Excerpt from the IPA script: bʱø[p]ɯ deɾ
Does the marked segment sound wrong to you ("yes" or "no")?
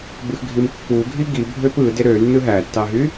no